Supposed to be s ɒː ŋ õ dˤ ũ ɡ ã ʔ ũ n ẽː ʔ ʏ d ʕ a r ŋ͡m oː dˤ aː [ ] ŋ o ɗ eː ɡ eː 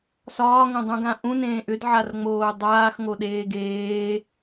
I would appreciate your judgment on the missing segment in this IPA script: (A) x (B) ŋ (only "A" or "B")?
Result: A